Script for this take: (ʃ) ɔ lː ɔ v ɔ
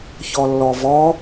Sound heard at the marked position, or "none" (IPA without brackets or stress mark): ç